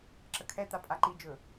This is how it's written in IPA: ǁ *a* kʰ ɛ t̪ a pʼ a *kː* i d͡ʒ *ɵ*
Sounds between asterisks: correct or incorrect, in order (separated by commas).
incorrect, incorrect, correct